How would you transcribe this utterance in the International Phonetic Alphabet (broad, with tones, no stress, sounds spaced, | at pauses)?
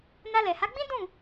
n a˧ l ɛ˨ h a˨˦ ɡ͡b ĩ˦ d ũ˦˨